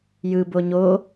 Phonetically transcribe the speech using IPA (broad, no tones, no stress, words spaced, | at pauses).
jɯ boɲo